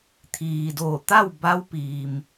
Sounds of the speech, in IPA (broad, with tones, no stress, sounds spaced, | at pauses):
t̪ʰ iː˩ d oː˧˩ t̪ a˥˨ w b a˧˥ w p iː˩ m